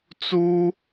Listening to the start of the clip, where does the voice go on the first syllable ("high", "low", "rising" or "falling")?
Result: high